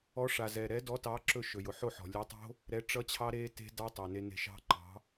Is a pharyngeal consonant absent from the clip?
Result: no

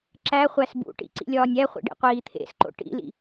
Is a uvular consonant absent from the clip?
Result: no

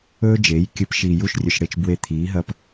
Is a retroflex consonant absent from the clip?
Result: no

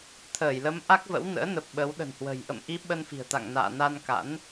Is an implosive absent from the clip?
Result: no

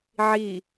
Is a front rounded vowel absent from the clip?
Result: yes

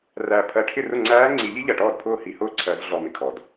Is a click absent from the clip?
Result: no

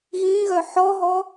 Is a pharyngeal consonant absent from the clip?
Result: no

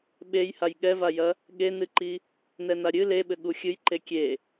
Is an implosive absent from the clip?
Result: no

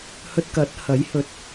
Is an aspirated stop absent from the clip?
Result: yes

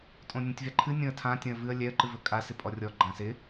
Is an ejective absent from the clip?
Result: no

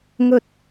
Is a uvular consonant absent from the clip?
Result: yes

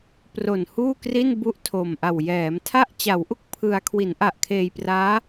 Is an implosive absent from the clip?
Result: yes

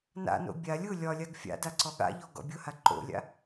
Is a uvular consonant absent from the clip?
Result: yes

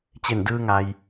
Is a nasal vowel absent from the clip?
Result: yes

